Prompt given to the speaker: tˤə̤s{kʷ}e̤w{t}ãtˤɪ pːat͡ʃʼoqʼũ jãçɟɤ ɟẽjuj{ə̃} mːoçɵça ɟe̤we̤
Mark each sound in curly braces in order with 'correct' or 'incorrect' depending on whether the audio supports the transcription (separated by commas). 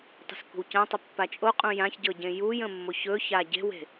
correct, incorrect, correct